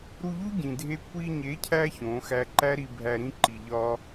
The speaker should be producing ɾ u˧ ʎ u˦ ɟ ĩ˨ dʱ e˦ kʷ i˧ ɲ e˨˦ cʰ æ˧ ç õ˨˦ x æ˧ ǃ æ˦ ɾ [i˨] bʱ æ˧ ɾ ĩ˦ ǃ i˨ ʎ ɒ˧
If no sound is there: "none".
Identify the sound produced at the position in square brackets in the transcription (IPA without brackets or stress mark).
i˨